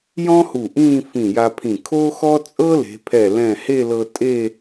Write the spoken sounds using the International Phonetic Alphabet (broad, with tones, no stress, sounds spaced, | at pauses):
j ɔ̃˥ h u˧˩ ʔ ĩː˥˧ f ĩ˧˩ j a˧ pʰ ĩ˧˩ kʰ o˥ x ɔ˥ t͡sʼ ɤ˥ l e̤˩˧ pʰ ɛ˧˩ l ɛ̃˧˩ h e˥˧ l ɤ˧ tʼ e˥˧